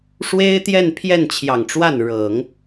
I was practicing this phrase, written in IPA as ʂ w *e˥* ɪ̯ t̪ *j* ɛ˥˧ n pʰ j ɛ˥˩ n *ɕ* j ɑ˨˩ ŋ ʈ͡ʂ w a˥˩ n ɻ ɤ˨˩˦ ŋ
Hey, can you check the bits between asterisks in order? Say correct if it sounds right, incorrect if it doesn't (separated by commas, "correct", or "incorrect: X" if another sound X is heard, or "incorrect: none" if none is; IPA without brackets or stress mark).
correct, correct, incorrect: t͡ɕʰ